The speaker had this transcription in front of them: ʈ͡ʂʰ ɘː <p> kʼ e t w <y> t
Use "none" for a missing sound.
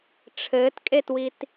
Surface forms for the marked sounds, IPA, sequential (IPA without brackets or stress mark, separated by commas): t, i